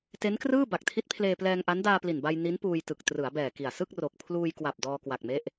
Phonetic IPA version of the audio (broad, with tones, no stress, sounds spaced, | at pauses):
t e˦˥ n k r ɯː˥˩ b a˨˩ k̚ tʰ i˦˥ t̚ pʰ l eː˧ p l ɛː˧ ŋ ʔ a˦˥ n d aː˧ p l i˨˩ n b a˧ j n i˦˥ n p uː˧ j t ɯ˨˩ k̚ t r ɯ˩˦ a̯ b ɛː˨˩ k i˨˩ a̯ s ɯ˥˩ k̚ r o˨˩ k̚ pʰ l uː˧ j k w a˨˩ p̚ d ɔː˧ k w a˨˩ k̚ m e˦˥ ʔ